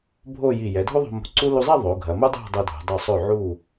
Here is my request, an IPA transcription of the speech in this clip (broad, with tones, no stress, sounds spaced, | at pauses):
bʱ o˥˧ j i˧˩ j ɛ˩˧ dʱ u˥ ðˤ o̤˧ m o̤˧ ǀ u˥ l u˧ zˤ i˥˧ ðˤ o˩˧ ɡʱ ɐ˩˧ m u˥ dˤ ɛ̤˥˧ dˤ u˧ dʱ ṳ˩˧ dˤ u˧˩ sˤ ø˧˩ ʕ u˧˩